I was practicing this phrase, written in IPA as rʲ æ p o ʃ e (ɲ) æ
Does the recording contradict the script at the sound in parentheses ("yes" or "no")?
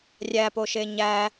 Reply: no